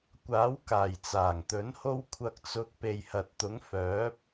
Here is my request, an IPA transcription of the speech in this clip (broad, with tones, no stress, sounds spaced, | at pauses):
kʷ aː˨˥ w k aː˨˩ j t͡s aː˨˩ ŋ t̪ ɵ˨˥ n h o˧ w kʷʰ ɐ˨ k̚ t͡s ʊ˨ k̚ p e˨ j h ɐ˨ t̚ t̪ ʊ˨˥ ŋ f œː˨˥ p̚